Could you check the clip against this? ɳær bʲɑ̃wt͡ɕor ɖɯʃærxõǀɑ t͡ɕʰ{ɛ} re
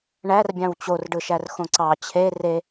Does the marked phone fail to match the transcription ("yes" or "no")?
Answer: yes